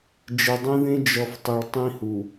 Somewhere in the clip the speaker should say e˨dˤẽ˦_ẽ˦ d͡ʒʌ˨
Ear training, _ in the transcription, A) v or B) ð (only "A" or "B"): B